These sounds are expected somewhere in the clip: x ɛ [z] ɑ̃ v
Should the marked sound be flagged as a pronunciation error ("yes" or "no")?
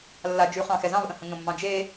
no